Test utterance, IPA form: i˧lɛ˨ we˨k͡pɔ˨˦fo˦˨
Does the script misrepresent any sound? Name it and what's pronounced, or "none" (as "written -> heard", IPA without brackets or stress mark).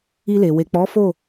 ɛ˨ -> e˨